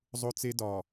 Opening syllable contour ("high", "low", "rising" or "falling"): high